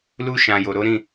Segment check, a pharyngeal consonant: absent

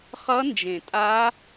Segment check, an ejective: present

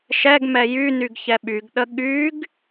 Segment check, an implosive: present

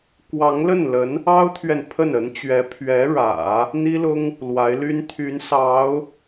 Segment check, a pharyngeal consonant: absent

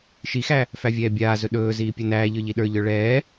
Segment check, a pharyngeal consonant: absent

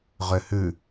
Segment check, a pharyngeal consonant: absent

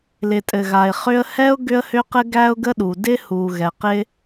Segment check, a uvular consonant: present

